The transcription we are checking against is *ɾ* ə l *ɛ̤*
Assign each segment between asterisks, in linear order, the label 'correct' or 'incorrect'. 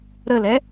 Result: correct, incorrect

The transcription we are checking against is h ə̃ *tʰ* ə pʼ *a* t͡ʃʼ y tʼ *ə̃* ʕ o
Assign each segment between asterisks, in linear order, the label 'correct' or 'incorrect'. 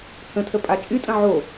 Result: correct, correct, correct

